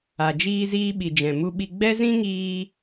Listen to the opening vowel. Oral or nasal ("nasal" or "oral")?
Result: oral